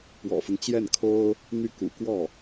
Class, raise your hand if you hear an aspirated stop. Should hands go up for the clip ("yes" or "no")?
yes